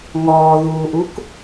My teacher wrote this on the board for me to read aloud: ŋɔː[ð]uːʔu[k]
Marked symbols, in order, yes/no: yes, yes

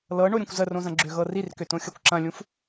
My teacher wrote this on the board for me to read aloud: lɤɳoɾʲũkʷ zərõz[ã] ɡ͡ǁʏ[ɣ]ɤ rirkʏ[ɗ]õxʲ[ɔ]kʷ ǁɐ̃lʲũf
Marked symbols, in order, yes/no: no, yes, no, no

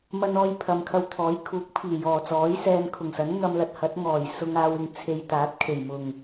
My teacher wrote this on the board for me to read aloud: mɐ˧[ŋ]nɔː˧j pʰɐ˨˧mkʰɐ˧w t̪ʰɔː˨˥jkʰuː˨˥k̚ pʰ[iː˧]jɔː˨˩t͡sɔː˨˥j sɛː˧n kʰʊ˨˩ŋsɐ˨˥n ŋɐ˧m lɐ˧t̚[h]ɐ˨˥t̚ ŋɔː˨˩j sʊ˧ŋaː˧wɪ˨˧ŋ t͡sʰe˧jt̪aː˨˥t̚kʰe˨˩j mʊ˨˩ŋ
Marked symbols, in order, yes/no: no, no, yes

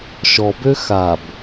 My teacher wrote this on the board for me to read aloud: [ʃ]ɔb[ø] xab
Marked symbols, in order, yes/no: yes, yes

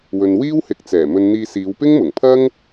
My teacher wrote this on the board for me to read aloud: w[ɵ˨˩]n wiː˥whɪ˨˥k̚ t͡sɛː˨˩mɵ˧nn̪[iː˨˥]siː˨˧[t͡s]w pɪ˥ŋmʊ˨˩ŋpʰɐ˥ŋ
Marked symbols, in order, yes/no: no, no, no

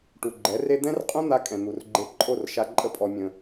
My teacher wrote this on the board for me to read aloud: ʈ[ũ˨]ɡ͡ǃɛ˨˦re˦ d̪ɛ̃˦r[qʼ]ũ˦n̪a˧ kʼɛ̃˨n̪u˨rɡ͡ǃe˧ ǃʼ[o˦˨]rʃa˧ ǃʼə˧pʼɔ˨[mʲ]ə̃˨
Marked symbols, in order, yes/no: no, yes, yes, yes

